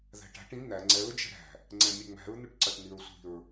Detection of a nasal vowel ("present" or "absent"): present